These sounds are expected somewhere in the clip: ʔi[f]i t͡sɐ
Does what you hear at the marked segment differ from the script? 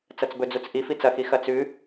no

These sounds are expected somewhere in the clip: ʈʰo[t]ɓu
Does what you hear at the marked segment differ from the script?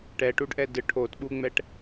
no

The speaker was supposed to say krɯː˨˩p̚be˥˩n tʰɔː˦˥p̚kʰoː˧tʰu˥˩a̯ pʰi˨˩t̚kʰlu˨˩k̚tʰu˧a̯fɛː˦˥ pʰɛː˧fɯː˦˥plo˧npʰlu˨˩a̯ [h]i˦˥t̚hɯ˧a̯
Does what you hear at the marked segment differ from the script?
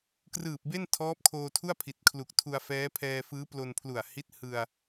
no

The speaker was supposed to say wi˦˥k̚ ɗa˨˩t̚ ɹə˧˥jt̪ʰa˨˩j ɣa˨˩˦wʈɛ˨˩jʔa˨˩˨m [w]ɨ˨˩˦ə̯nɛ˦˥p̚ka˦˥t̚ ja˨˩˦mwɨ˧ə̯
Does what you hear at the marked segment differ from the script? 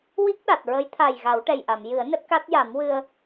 yes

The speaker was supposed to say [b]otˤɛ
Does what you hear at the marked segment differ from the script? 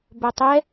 no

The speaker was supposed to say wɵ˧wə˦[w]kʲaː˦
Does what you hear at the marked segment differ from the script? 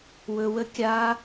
yes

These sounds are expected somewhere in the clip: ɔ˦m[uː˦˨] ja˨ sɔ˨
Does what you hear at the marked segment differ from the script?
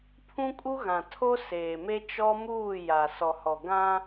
no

